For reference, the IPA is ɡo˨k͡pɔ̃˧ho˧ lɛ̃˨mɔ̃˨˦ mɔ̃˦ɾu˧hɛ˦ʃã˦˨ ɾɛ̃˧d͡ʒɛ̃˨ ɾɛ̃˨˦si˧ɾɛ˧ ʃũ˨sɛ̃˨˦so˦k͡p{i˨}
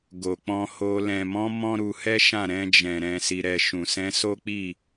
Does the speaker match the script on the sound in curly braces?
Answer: no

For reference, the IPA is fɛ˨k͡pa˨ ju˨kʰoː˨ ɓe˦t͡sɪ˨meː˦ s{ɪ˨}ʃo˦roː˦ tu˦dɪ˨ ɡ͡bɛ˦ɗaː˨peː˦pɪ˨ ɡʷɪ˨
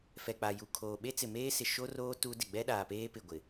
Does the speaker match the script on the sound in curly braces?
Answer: yes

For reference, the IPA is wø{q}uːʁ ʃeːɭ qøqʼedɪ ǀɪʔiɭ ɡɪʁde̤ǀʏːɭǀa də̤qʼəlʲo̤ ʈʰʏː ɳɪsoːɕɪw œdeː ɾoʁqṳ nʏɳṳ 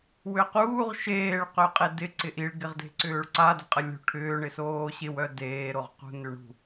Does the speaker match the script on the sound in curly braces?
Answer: yes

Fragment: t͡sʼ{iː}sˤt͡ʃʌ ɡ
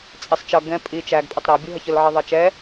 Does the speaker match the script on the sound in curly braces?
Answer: no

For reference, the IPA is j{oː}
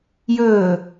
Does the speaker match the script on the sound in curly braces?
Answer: no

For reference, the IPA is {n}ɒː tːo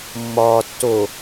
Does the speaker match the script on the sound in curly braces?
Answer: no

